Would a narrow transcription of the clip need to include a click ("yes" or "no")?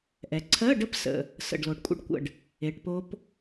yes